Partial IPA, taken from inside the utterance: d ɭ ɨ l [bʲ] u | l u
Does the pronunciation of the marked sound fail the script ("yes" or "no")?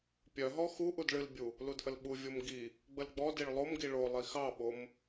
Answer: no